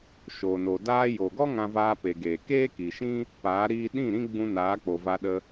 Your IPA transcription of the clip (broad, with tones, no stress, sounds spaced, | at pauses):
ʃ oː˨ n o˨ d aː˧ j o˨ ɡ ɔ˦ ŋ ã˧ v aː˧ p e˨ ɡ eː˨ k eː˦ k i˨ ʃ ĩ˦ | p aː˨˦ ɾ iː˧ ɗ ĩ˦˨ ɾ ĩ˦ ɡ͡b ũ˧ n aː˨˦ k͡p o˨ v a˧ ɗ ə˧